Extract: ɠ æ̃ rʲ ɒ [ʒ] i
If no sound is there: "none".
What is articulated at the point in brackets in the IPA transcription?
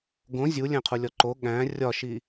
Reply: ʃ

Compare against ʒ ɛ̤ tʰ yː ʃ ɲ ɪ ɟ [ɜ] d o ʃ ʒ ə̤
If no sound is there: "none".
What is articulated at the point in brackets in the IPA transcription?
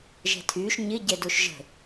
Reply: ɛ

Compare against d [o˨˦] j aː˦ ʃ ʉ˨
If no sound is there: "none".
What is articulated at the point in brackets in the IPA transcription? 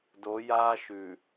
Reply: o˨˦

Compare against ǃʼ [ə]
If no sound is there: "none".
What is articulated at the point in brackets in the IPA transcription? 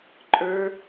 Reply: ə˞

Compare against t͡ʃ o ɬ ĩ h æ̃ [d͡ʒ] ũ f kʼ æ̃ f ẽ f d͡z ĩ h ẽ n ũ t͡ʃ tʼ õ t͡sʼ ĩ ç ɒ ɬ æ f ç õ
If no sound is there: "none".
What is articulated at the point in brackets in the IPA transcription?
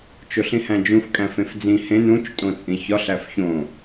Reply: d͡ʒ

